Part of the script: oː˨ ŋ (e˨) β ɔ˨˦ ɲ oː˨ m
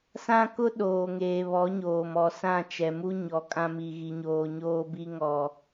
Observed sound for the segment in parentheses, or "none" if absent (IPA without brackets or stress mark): eː˨